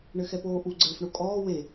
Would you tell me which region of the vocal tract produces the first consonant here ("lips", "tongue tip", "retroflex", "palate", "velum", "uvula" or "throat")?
retroflex